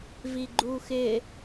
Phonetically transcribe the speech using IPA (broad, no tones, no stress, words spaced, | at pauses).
viɡ͡ǃuxɪ